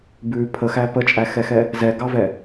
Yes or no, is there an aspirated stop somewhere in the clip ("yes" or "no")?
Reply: yes